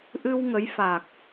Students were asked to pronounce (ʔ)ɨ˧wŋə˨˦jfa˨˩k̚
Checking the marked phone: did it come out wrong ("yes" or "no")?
no